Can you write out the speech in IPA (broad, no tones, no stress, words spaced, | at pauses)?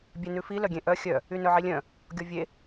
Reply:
bʲɛnʉfi lœɡʲẽʔœ xʲœ | ynœʕilʲœ̃ | ɡʲɔvʲe